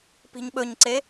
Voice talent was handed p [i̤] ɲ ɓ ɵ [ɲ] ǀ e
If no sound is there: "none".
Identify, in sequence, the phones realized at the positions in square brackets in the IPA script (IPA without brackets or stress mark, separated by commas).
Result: i̤, ɲ